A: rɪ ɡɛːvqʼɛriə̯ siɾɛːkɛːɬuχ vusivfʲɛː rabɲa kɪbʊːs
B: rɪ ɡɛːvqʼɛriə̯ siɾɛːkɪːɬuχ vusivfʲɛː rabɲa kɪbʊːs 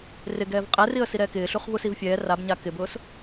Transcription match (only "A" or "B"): B